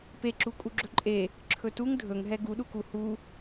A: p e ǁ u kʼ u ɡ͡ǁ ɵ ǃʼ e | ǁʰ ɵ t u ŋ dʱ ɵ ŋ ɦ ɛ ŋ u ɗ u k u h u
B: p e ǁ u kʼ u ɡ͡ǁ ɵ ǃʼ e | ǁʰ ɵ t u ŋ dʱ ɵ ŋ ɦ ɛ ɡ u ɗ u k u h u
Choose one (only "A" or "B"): B